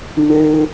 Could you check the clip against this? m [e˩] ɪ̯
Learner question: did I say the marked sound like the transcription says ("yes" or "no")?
no